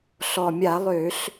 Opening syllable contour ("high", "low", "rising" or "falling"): low